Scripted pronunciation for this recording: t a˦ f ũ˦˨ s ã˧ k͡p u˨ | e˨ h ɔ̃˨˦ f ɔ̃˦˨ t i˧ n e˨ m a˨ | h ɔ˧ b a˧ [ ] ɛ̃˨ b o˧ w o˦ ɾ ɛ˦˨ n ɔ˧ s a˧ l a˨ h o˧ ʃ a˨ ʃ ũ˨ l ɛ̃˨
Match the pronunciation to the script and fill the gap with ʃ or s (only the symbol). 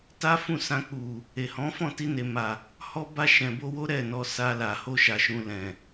ʃ